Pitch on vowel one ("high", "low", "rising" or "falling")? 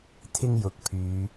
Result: high